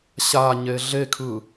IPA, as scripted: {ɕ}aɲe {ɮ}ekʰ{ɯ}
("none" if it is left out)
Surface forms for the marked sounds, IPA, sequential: ɕ, ɮ, ɯ

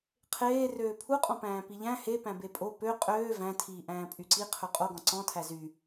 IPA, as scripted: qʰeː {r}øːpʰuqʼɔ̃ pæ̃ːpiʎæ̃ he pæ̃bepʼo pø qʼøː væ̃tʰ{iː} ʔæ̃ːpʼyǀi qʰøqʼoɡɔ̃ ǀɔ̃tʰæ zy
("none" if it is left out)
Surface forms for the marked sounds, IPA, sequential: r, iː

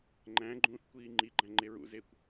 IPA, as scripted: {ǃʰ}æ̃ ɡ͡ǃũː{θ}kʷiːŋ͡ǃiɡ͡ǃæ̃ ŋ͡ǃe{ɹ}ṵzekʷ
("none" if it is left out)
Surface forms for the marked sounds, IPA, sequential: ŋ͡ǃ, θ, ɹ

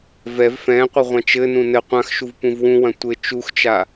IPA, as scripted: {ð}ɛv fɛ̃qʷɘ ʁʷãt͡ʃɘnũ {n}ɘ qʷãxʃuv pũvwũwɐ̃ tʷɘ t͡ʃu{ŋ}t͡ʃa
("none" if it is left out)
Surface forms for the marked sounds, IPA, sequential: v, n, x

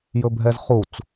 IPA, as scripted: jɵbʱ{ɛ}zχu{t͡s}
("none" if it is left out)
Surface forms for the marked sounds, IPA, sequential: ɛ, t͡s

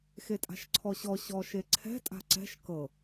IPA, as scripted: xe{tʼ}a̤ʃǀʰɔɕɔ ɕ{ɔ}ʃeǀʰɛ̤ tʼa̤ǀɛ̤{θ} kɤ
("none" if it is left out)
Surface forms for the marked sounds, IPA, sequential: tʼ, ɔ, ʃ

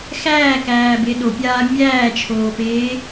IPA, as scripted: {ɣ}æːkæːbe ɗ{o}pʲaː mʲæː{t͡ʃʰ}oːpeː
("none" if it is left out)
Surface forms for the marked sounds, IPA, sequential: x, o, t͡ʃʰ

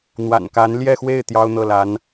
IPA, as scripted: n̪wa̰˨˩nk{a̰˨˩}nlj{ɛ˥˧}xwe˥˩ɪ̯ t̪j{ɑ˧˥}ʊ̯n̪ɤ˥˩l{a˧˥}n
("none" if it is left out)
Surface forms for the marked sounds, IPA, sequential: a˧˥, ɛ˥˧, ɑ˥, a˧˥

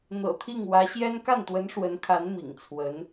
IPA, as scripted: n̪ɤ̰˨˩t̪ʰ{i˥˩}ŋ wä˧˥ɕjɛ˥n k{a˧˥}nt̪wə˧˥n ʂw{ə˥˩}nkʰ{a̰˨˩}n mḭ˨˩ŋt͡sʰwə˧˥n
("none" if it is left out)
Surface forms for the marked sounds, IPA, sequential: i˥˩, a˥˩, ə˧˥, a˧˥

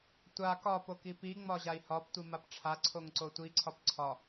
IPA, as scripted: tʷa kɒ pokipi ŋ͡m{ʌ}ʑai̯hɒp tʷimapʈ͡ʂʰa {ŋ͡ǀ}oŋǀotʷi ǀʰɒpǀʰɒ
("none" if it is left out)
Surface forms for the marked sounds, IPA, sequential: ɒ, ǀʰ

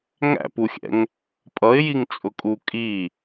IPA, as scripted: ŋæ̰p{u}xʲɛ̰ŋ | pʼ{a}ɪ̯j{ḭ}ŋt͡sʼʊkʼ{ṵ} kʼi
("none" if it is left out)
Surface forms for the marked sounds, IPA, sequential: u, ʌ, i, u

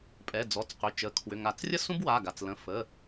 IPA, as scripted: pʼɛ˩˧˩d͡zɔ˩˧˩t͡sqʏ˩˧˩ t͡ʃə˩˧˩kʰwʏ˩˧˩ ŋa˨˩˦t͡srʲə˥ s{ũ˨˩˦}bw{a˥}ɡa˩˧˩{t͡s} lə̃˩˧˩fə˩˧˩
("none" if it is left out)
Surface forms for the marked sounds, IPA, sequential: ũ˥, a˩˧˩, t͡s

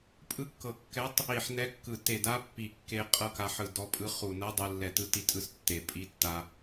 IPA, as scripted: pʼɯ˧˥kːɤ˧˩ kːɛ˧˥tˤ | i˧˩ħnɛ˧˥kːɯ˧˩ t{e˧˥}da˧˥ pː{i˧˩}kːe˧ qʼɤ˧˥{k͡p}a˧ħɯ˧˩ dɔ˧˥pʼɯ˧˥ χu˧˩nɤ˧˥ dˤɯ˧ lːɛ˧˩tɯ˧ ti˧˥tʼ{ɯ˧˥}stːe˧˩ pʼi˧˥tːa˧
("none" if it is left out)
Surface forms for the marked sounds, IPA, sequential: e˧˩, i˧˩, k, ɯ˧˥

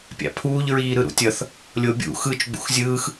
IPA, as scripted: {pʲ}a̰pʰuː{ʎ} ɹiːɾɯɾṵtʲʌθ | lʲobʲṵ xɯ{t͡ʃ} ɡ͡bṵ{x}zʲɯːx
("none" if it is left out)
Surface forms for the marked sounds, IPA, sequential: pʲ, ʎ, t͡ʃ, x

